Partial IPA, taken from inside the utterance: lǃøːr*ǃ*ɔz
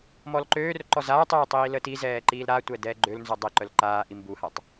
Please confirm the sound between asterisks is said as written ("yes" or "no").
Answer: yes